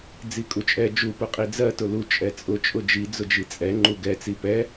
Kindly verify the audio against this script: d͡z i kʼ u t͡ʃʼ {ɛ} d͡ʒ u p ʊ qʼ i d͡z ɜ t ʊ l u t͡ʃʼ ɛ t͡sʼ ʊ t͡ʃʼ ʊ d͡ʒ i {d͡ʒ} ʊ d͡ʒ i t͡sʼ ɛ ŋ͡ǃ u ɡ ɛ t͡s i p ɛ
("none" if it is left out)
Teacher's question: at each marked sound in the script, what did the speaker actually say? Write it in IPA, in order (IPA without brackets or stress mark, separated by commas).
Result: ɛ, d͡z